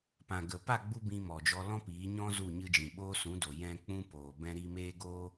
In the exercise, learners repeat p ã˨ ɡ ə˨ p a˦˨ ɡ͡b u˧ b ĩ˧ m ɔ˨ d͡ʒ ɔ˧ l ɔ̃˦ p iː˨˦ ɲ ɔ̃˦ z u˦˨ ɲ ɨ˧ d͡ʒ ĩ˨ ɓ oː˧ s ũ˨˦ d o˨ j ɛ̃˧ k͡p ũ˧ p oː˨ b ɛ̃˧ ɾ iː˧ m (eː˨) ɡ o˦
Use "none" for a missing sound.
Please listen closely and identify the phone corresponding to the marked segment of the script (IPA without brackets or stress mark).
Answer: eː˦